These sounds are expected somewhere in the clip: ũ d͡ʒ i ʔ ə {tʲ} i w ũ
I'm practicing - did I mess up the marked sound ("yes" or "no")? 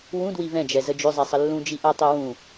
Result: yes